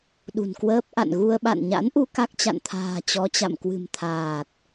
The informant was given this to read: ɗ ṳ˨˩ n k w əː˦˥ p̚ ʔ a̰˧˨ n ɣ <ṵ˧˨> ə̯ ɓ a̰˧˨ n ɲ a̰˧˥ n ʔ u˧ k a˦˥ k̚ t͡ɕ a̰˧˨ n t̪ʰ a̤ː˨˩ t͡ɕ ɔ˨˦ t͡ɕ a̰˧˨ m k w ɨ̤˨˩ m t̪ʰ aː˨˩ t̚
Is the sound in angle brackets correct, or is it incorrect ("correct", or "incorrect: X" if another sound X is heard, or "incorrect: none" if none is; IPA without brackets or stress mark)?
incorrect: u˧